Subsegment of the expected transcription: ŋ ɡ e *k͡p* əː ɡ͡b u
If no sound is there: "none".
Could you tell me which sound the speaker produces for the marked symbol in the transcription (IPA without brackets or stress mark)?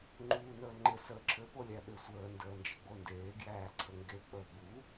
k͡p